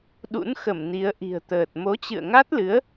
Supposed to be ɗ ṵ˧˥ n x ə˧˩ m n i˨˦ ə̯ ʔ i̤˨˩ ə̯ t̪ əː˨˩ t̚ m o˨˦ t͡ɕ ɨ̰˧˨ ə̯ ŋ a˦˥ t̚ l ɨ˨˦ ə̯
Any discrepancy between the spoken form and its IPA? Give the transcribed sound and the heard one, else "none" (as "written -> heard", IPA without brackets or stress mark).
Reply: none